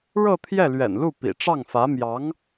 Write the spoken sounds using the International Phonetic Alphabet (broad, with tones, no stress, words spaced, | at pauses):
ɻɤ˥˧ t̪ʰjɛ˥˩lɥɛ̰˨˩nlu˥˩ pḭ˨˩ʈ͡ʂɑ˥˩ŋfä˧˥mjɑ˧˥ŋ